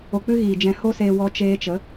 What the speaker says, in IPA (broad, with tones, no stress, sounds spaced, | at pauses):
o˧ k͡p ɨ˦ ɣ iː˨ d͡ʒ ɛ̃˧ h o˦ s eː˧ w ɔ˧ t͡ʃ eː˧ t͡ʃ ə˨˦